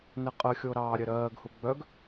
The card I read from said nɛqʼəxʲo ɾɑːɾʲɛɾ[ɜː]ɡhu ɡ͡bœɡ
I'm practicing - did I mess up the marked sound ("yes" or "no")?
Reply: no